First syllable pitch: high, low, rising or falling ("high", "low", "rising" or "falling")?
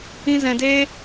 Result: high